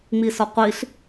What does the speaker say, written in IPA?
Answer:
ŋ͡miːsɔqʷiɬ

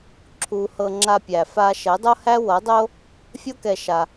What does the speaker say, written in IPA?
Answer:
ǁʰu˧ hɤ˧ŋ͡ǁa˧pʲæ˨fa˧ ʃɛ˨˦dˤo˦hæ˦ wɤ˨˦dˤo˦ | fʲo˦kɛ˧ ʃa˧

